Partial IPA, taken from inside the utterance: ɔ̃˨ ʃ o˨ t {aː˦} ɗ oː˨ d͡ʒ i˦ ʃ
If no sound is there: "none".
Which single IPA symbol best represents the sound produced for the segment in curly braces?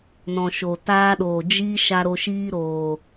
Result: aː˦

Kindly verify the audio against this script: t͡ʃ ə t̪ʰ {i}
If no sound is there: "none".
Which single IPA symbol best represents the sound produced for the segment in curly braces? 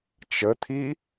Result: i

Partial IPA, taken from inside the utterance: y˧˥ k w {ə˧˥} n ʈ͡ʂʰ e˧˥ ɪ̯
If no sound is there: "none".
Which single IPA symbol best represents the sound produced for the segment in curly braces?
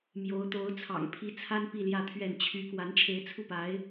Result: a˧˥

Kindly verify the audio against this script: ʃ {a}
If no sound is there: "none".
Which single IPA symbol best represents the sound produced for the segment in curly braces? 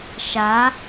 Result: a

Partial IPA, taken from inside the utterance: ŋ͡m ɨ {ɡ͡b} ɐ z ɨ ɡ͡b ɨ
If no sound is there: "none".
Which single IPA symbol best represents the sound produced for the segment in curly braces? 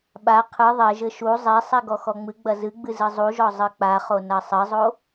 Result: ɡ͡b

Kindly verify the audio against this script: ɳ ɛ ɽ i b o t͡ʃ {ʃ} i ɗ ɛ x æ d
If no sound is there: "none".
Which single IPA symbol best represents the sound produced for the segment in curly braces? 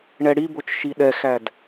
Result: ʃ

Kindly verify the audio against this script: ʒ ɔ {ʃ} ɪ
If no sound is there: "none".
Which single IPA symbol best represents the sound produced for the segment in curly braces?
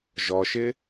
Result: ʃ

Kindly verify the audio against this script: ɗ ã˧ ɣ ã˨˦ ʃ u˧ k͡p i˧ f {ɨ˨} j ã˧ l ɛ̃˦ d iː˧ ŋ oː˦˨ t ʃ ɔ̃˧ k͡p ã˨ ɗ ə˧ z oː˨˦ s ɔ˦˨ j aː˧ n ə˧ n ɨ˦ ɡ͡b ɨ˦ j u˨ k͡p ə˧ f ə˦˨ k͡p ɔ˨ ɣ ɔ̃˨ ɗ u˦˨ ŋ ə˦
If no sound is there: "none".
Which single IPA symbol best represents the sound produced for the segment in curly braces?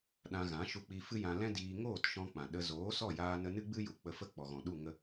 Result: ɨ˦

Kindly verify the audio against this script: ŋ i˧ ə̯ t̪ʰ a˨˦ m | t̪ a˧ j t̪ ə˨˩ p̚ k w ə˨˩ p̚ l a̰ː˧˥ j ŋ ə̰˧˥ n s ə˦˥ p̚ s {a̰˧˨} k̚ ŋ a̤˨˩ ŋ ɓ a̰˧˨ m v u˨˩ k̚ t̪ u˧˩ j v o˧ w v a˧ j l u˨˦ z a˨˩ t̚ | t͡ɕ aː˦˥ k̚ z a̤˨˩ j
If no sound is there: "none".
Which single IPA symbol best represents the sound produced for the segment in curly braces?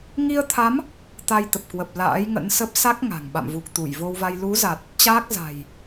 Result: a˦˥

